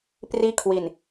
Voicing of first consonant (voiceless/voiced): voiceless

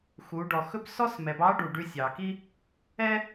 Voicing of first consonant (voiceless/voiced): voiceless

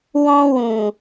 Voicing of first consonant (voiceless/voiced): voiced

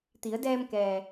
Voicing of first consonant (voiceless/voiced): voiceless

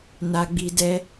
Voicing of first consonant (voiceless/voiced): voiced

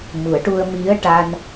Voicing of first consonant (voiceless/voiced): voiced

